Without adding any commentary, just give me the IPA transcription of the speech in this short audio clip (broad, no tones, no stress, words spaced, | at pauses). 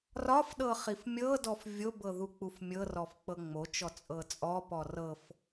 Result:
rɒfɗɤ χifmʲɤdɔf vʲobɤ ðuk͡pufmʲɤrɔf k͡pɤŋ͡mot͡ʃɔ t͡sʼɤt͡sʼɔpɔ rɤf